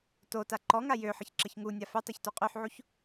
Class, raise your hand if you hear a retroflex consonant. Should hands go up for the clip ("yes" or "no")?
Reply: no